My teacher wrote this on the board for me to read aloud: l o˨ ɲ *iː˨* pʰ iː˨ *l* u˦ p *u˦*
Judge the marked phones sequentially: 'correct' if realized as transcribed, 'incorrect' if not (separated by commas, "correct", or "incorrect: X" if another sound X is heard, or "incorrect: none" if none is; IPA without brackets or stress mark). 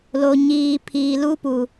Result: correct, correct, incorrect: u˨